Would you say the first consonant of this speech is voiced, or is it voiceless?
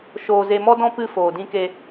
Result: voiceless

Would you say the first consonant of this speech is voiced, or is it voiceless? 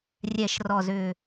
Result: voiced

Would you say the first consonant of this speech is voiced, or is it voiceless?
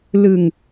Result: voiced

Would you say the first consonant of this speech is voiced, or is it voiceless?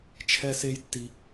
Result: voiceless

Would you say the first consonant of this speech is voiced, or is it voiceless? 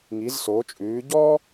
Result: voiced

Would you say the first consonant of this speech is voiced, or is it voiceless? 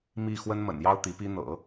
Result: voiced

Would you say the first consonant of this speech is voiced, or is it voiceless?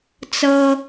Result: voiceless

